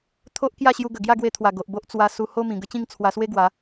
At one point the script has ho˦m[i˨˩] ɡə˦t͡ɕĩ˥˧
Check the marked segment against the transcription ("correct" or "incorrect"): incorrect